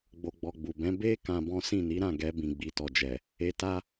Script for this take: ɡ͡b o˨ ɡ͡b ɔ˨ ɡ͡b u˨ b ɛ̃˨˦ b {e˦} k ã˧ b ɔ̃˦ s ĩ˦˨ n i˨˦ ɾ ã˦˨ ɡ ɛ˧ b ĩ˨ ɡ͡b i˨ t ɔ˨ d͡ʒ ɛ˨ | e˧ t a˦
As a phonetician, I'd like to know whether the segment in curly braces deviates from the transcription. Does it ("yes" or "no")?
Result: no